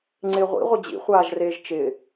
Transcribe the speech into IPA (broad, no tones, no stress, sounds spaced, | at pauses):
ŋ͡ǀ ɪː ʁʷ ḭ ʁʷ ɪ d͡ʑ ḭ χʷ aː ʒ r eː ʒ t͡ʃ ɪː